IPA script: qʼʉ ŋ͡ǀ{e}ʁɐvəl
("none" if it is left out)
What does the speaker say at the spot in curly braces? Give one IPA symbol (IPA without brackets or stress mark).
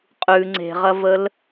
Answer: e̤